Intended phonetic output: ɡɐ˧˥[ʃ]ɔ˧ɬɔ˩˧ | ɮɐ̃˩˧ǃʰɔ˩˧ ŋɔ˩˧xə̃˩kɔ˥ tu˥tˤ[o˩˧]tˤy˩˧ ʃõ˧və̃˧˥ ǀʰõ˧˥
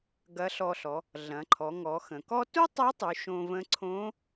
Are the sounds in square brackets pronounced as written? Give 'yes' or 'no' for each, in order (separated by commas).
no, no